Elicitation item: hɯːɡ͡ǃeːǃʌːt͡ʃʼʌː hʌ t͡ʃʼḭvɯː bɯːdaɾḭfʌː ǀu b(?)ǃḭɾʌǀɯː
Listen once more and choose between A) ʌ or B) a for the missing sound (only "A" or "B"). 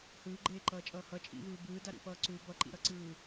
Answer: A